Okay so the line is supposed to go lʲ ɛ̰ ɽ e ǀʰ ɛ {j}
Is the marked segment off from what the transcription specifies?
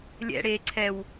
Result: yes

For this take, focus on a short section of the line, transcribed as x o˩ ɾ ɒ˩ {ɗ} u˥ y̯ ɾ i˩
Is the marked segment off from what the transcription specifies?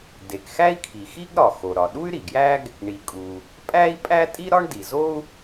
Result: no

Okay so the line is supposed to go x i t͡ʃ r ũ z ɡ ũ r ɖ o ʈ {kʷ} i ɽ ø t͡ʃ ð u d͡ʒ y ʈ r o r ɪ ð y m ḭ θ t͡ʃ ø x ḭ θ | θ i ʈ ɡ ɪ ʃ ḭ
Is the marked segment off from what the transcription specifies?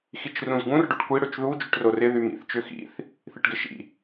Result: no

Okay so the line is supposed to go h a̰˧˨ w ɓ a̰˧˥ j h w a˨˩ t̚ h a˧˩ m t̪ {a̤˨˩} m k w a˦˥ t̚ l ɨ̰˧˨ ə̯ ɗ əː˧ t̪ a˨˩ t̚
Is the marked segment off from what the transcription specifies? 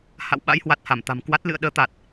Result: no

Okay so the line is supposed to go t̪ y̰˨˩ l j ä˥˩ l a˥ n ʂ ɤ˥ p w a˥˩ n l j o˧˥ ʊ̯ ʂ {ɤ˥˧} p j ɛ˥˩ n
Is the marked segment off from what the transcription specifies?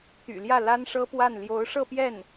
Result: no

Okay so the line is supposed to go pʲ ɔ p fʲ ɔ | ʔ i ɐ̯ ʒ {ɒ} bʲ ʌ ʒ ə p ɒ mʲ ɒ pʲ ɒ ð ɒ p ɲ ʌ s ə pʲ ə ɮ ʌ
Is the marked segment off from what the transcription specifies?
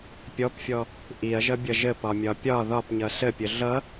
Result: yes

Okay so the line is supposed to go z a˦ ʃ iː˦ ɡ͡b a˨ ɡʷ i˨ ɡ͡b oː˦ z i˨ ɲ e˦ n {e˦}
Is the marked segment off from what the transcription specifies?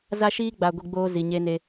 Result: no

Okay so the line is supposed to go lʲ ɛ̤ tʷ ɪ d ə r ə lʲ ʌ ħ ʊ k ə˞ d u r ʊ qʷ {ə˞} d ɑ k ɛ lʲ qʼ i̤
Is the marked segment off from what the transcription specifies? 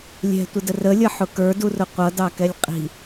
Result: yes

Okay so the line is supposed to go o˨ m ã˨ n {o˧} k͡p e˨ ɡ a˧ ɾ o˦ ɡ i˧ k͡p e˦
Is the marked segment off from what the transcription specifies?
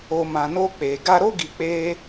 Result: no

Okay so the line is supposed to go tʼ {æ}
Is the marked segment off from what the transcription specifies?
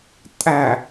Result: no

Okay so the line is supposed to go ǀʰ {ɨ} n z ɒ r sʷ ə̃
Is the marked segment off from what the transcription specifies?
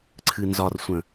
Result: no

